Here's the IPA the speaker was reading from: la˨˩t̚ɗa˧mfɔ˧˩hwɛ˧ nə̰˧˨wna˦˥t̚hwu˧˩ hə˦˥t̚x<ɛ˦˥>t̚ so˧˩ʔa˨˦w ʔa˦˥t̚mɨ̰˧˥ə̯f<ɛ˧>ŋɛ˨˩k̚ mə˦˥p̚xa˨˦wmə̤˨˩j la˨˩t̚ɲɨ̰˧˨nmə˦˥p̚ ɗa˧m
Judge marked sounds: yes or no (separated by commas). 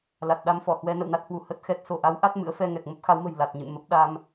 yes, yes